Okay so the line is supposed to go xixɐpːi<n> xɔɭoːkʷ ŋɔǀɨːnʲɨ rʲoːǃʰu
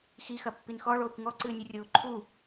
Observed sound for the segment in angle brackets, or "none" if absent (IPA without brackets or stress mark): n